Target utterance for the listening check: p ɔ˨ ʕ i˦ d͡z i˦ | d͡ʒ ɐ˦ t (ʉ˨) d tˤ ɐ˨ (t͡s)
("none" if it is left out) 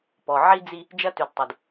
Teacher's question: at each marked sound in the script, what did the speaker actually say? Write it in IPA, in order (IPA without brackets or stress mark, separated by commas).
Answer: ʉ˨, d